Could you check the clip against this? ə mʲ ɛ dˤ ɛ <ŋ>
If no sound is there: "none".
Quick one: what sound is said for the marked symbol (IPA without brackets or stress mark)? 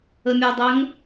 ŋ